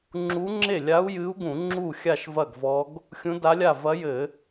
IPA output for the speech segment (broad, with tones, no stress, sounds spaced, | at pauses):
ŋ͡ǁ u˧˥ ŋ͡ǁ e˥˩ lʲ a˧˥ u̯ j ɨ˧˥ u̯ ɡ ũ˧˩˧ ŋ͡ǁ u˥˩ xʲ a˥˩ ʃ v ɐ˥˩ ɡ v ɔ˧˥ ɡ | xʲ ũ˧˥ d a˧˥ lʲ a˥˩ v ɐ˧˥ j ɘ˧˩˧